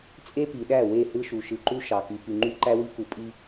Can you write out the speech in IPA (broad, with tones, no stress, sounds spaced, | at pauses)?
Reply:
t͡sʼ e˦ p i˨ ɗ æ˦˨ w e˦˨ h ɯ˦ ʃ u˨ ʃ ɯ˨ ǃ u˦ ʃ ɑ˨ k y˨ p y˨ ŋ͡ǃ y˦ ǃ æ˦ w i˦ k u˨ pʼ i˦